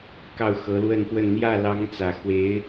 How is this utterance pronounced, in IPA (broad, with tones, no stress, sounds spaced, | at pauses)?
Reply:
k ɑ˥˩ ʊ̯ x ɤ˧˥ l w ə˥˧ n p w ə˥˧ n n̪ j ä˥˩ l ɑ˧˥ ŋ t͡s ä˨˩ x w e˧˥ ɪ̯